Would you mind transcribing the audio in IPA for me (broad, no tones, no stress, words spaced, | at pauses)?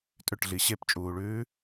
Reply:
tʼʏʈɮi ɕept͡ʃʼuːɭʉː